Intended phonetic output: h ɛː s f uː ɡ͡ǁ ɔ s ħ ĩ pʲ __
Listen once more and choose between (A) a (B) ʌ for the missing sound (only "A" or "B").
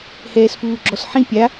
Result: A